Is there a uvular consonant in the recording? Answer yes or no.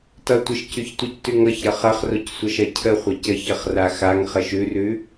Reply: yes